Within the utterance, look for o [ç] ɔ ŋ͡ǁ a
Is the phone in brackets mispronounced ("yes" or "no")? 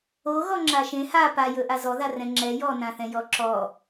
yes